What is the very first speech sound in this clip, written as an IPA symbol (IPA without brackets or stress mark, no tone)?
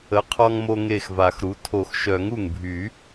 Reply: ə